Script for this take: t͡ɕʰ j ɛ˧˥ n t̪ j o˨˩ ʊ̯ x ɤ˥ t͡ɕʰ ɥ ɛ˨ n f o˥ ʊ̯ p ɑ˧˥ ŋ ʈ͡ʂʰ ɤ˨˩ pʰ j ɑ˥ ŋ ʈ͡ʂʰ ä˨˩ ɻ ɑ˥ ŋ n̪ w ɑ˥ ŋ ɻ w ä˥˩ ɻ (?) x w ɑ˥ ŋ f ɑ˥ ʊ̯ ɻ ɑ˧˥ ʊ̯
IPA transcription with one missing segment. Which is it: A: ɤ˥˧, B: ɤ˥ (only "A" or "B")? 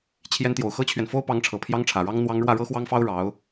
B